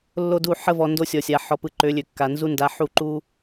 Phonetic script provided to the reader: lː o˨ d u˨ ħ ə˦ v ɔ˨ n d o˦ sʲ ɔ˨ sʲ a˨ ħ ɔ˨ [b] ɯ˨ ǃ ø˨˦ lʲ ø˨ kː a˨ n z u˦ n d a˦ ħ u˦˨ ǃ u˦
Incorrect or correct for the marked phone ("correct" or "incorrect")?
incorrect